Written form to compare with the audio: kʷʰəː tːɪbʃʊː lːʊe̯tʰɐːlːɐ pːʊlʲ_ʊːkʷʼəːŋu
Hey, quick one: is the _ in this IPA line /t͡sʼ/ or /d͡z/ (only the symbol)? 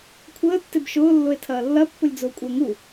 d͡z